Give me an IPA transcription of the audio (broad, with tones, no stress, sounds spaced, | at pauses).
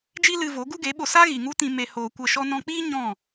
d͡ʒ i˦ l ɨ˧ v o˨˦ ɡ u˦ ɡ e˨˦ ɓ o˧ s a˦ ɣ i˨ ŋ u˦ t ĩ˧ m e˧ h oː˧ kʷ ə˦˨ ʃ ɔ˦ n ɔ̃˧ k͡p iː˦ ɲ ɔ̃˦˨